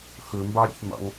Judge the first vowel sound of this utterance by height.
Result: mid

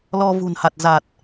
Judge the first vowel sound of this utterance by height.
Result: mid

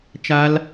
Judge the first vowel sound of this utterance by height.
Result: low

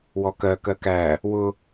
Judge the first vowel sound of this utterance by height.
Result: mid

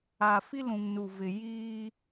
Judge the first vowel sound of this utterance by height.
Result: low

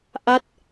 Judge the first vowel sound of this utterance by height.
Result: low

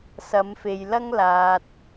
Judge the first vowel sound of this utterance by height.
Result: low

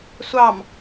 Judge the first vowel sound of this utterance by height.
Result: low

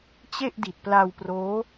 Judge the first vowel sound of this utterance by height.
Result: mid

